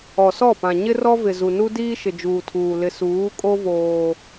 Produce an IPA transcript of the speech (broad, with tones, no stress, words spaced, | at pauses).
ɔ˨sɔ˦˨pã˨ ɲɪ˦rɔ˦vɪ˨ zu˨nu˦ diː˦ʃɪ˨d͡ʒuː˨tʰuː˨ lɪ˨suː˨˦kʼo˦ voː˦